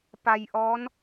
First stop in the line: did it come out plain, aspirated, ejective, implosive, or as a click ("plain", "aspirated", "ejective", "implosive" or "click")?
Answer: plain